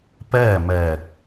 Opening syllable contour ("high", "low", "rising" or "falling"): falling